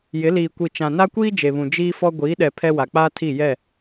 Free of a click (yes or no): yes